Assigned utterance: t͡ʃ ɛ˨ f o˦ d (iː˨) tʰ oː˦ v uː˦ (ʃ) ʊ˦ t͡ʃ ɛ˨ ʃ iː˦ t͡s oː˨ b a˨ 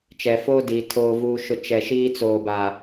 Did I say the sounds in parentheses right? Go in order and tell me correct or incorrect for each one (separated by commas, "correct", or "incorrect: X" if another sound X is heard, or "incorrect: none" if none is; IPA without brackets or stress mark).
correct, correct